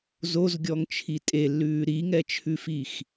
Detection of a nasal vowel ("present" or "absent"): absent